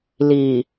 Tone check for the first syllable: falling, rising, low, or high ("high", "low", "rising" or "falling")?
low